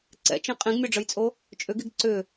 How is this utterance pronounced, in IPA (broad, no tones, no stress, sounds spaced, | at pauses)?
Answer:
ǀ ɛ̰ t͡ʃ ĩ qʼ ĩ ɡ mʲ ɔ ɖ͡ʐ ə j t͡sʼ o | t͡ʃʼ ʏ ɡ i ɡ ǀ ʏ